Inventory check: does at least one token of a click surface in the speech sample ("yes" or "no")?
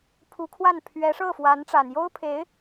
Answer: no